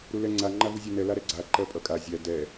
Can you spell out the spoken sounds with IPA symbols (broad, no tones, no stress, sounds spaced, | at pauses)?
ɾ u l ɛ ŋ͡ǀ a ŋ͡ǃ a v u zʲ a n ɛ l a ɾ ɛ ɡ͡ǀ a ǃ ɜ pʼ ʌ kʼ a zʲ æ d ɛ